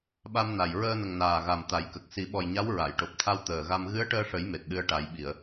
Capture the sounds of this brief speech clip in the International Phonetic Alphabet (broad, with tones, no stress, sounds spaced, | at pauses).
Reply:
ɓ a˧ m n a˨˩ j ɹ əː˧ n ə˨˩ ŋ n aː˨˩ ɣ a˨˩ m t̪ a˨˩˦ j k ə˨˩ k̚ s i˨˩˦ ɓ ɔ˨˩ j ɲ a˧˥ w ɹ a˨˩˨ j ʈ o˨˩ p̚ t̪ʰ a˧ w t̪ əː˨˩ ɣ a˧ m ɣ ɨ˧˥ ə̯ ʈ əː˧ ʂ ə˨˩˦ j m e˨˩ t̚ ɗ ɨ˧ ə̯ ʈ a˨˩˦ j ɓ i˨˩˨ ə̯